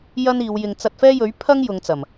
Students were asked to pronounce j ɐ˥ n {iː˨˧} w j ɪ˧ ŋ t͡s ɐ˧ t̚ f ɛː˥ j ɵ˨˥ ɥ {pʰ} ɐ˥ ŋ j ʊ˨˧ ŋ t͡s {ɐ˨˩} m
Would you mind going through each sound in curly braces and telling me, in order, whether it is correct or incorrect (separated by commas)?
correct, correct, correct